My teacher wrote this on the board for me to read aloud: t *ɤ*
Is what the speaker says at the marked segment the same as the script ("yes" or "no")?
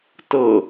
yes